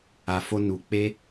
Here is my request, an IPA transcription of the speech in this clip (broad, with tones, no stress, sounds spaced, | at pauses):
a˨ f o˧ n u˨ k͡p e˧